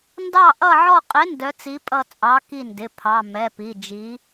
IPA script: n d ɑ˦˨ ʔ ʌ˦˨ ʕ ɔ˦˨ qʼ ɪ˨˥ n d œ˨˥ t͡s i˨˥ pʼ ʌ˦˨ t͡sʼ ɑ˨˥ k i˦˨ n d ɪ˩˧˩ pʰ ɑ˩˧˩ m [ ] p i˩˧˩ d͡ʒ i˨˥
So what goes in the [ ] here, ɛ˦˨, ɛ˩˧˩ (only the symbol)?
ɛ˩˧˩